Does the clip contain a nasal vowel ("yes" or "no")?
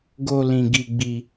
yes